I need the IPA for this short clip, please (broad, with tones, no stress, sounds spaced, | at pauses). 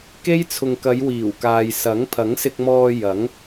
k e˥ j t͡sʰ ʊ˨ ŋ k ɐ˨˧ j w iː˨˩ w k aː˨ j s ɐ˨˥ ŋ pʰ ɐ˨˥ ŋ s ɪ˧ k̚ m ɔː˧ j ɐ˨˥ ŋ